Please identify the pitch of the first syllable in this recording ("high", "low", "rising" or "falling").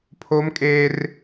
high